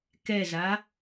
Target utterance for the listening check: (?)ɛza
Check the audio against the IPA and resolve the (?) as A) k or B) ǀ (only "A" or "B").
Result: A